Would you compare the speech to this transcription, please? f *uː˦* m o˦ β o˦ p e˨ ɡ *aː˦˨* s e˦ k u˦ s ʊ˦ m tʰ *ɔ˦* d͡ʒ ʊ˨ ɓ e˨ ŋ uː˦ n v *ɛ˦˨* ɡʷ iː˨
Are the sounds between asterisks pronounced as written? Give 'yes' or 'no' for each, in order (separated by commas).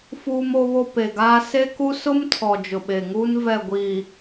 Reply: yes, no, no, yes